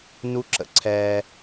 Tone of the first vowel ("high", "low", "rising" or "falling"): high